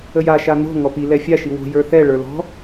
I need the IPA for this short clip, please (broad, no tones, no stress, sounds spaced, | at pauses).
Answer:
ə j a ʃ a n o̤ ŋ ɔ p i l ɛ fʲ a ʃ i w o̤ j ə˞ θ ɛ ɭ ə˞ l ɔ̤